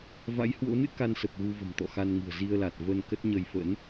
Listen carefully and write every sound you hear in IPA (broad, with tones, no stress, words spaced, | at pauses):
va̰˧˥jhwo̰˧˥nɨ̰˧˥ ka˧nsə˨˩p̚ ɣu˧və̤˨˩m t̪ɔ̰˧˨xa˧n ŋɨ̤˨˩ə̯zi˧ə̯la˨˩t̚ və˧nkə˦˥t̚ɲə˧j fə̰˧˥n